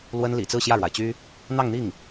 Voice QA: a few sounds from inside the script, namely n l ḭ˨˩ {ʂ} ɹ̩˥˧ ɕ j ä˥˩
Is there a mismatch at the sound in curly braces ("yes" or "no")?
yes